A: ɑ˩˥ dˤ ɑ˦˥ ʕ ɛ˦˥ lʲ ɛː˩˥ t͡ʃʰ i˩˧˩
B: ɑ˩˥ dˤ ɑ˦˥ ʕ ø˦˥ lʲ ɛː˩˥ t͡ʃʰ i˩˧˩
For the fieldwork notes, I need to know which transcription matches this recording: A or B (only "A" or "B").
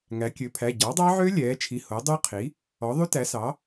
B